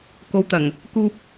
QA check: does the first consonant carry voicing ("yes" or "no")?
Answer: no